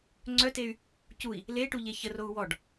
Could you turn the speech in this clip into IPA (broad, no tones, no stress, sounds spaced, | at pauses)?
ŋ͡ǀ œ t e y̯ | c u i̯ | l e ʈ u ʎ e ç ə r o u̯ w ɔ ɖ